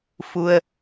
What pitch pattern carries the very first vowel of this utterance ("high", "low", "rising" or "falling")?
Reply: low